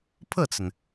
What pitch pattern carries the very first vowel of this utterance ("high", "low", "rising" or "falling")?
falling